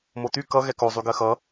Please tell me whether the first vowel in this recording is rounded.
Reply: yes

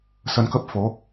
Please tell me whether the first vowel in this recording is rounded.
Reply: no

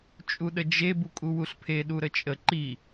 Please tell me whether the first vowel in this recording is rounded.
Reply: yes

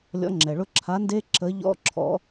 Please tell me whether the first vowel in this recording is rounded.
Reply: yes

